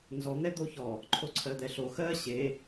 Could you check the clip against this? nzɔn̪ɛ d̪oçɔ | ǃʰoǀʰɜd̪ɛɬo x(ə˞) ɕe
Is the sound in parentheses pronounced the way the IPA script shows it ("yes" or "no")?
no